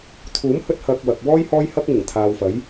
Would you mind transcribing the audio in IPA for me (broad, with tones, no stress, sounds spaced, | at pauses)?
t̪ʰ uː˨˥ m h ɵ˧ t̚ h ɐ˨ k̚ w ɐ˨ k̚ w ɔː˥ j h ɔː˥ j h ɐ˥ k̚ ŋ ɪ˨˩ ŋ t̪ʰ aː˨ w f ɐ˨˥ j